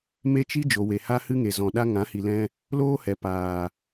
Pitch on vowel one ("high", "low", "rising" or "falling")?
high